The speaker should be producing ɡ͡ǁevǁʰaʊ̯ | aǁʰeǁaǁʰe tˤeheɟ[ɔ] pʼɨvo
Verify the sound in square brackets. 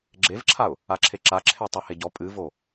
correct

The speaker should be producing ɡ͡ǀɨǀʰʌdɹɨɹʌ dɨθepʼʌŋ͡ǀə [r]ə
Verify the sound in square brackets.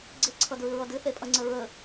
incorrect: ɹ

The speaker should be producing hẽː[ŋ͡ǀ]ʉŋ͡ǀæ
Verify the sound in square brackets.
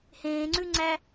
correct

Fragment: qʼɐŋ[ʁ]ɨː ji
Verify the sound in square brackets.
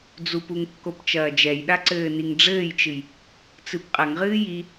correct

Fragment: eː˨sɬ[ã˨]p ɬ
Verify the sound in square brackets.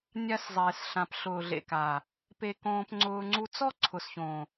correct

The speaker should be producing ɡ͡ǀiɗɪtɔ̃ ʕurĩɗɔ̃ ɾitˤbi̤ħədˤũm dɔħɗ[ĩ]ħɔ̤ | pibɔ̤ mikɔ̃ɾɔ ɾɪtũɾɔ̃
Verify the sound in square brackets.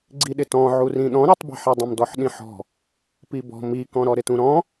correct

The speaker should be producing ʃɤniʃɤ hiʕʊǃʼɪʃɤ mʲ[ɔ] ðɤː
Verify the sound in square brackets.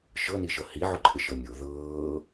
incorrect: o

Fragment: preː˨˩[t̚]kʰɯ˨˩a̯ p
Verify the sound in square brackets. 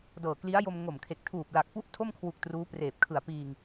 incorrect: p̚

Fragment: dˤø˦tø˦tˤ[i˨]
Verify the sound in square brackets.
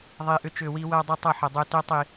correct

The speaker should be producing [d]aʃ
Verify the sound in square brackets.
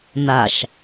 incorrect: n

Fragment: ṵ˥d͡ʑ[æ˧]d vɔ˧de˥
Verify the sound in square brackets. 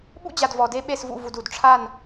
incorrect: a˧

